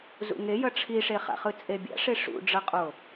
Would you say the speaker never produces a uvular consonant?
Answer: no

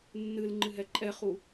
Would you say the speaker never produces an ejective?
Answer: no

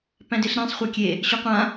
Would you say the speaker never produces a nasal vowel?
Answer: no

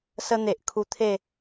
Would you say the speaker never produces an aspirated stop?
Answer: no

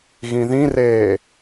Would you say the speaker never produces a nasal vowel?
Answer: no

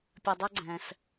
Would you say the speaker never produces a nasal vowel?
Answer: no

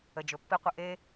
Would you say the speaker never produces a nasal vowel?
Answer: yes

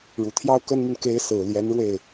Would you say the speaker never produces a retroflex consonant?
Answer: no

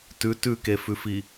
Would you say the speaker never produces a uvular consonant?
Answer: yes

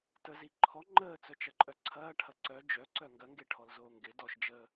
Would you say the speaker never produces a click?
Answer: no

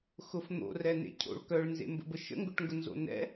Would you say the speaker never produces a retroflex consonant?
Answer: no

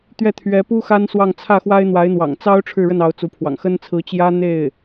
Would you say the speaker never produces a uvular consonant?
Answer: yes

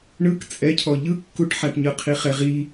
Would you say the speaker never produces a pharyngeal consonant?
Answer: no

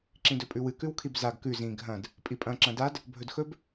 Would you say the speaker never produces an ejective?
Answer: no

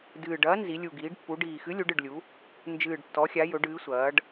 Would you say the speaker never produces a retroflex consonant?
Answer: no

